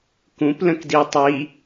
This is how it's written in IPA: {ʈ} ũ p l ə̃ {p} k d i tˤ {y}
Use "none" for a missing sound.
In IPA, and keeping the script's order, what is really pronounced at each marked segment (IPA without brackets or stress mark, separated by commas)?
k, none, i